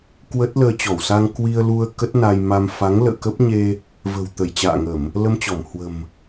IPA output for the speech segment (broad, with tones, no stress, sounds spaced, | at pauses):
k w ə˦˥ t̚ l əː˧ t͡ɕ ɔ˧˩ w s a˧ ŋ k w i˧ ə̯ l u˧ ə̯ k ə˦˥ t̚ n a˧ j m a˧ m f a˨˦ ŋ l ə̰ː˧˨ k ə˦˥ p̚ ɲ e˧ | v ə̤˨˩ w t̪ ə˧˩ j t͡ɕ a̰ː˧˨ ŋ ə˧˩˨ m | l ə˧ m t͡ɕ ɔ˧˩ m h w ə̤˨˩ m